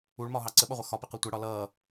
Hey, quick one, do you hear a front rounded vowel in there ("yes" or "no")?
no